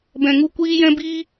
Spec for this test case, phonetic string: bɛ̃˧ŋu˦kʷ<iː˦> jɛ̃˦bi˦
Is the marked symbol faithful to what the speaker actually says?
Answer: yes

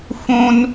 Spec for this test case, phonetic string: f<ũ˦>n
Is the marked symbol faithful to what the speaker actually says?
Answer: yes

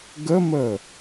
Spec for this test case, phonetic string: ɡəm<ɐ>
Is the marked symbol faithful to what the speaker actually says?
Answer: no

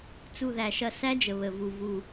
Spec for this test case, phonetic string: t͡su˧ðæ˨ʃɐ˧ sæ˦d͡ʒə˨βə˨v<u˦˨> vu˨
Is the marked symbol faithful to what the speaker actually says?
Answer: no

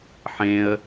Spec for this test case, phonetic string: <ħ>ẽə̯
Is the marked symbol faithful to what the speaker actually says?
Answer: yes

